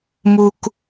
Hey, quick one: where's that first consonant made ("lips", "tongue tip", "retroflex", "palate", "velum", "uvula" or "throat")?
lips